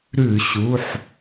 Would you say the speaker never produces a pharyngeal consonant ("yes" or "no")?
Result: no